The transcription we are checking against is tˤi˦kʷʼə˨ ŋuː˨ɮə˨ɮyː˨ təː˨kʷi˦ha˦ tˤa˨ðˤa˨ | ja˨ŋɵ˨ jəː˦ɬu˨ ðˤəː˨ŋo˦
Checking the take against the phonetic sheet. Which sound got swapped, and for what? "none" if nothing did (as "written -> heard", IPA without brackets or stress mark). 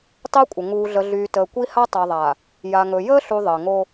none